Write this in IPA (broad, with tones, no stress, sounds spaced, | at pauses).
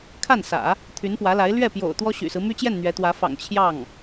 kʰ a˥˩ n s ä̰˨˩˦ | t̪ʰ y˧˥ n p w ä˧˥ l a˧˥ ɪ̯ l ɥ ɛ˥˩ p j o̰˨˩ ʊ̯ t̪ w ɔ˥ ɕ y̰˨˩ s ɹ̩˦ m y˥ t͡ɕ j ɛ˥˩ n n̪ ɥ ɛ˧˥ t̪ w ä˧˥ f ɑ̰˨˩ ŋ t͡ɕʰ j ɑ˥˩ ŋ